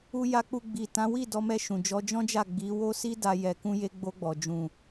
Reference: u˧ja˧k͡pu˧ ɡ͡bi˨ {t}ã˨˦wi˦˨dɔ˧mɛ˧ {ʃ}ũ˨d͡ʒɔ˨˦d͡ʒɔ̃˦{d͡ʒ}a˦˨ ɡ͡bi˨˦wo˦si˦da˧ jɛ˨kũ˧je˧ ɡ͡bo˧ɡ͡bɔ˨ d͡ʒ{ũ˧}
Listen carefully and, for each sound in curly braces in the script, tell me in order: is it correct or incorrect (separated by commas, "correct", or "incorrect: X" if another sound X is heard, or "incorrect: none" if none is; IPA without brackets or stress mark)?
correct, correct, correct, incorrect: ũ˨